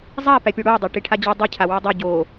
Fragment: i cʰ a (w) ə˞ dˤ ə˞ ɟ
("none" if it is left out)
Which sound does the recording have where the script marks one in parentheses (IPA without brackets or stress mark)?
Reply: w